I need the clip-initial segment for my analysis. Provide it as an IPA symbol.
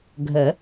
ɡʱ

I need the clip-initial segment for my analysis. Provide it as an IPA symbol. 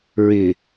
ɹ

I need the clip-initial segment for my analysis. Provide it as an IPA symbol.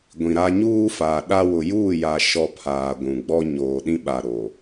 ɡʷ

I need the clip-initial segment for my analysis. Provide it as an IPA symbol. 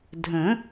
dʱ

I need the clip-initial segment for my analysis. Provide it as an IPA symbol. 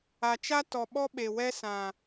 a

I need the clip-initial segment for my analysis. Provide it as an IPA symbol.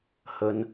h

